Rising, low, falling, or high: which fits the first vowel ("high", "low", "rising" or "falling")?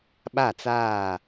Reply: falling